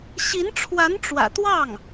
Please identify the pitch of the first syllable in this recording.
rising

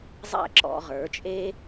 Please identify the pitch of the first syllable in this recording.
falling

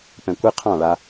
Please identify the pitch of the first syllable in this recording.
low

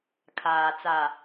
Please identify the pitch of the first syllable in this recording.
low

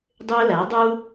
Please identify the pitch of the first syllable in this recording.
high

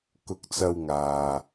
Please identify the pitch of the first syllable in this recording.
low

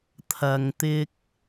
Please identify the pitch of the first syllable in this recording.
low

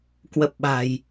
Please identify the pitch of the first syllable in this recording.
low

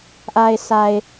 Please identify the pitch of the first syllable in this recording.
low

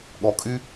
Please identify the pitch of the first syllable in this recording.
low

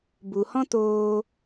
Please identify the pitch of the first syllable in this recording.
low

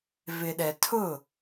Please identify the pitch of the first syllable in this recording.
low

